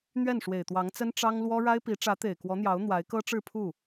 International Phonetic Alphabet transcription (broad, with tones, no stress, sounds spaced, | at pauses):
n̪ ɥ ɛ˥˩ n ʂ w e˨˩ ɪ̯ t̪ w ɑ˧˥ ŋ t͡s ə˥ n ʈ͡ʂ ɑ˥ ŋ l w ɔ˥ ɻ a˥ ɪ̯ p i˧˥ ʈ͡ʂ ä˧˥ t̪ e˨˩ ɪ̯ k w ɔ˧˥ n̪ j ɑ˧˥ ʊ̯ n̪ w a˧˥ ɪ̯ k ɤ˥ ʈ͡ʂ ɻ̩˥˧ pʰ u˥˩